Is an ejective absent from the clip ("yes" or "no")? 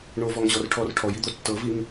yes